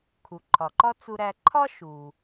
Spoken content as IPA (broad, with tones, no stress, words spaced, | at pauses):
kʰu˩ǃʰɒ˩ǃɒ˥ t͡su˧ɾæ˧ ǃʰɒ˥ ʃu˩